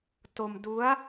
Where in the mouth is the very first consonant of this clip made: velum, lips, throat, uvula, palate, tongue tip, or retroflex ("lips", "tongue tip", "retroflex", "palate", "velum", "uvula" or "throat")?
tongue tip